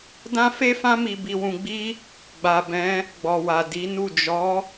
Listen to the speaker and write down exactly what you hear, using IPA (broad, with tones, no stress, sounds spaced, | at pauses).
d ã˦ f e˦ f ã˦ m i˧ b i˧ w ũ˧ ɡ͡b i˦ | ɡ͡b a˨ b ɛ̃˨˦ | ɡ͡b ɔ˨ w a˨ d i˨˦ n u˦˨ d͡ʒ ɔ˨˦